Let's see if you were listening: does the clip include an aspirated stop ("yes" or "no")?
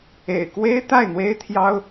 yes